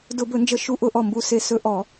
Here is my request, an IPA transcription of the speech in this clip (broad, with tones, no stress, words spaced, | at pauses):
dʊ˧˩˧bɵ˧˩˧nd͡ʒə˧˩˧ ʃu˧˩˧ʔʊ˧˩˧ʔɔ˧˩ mbu˧˩se˧˩ sɵ˧˩˧ ʔɔ˧˩˧